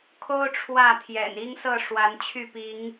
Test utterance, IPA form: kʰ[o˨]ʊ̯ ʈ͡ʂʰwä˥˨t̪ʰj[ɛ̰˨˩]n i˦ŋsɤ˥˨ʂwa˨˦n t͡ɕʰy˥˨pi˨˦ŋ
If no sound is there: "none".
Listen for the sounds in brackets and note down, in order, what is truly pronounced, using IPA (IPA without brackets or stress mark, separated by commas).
o˦, ɛ̰˨˩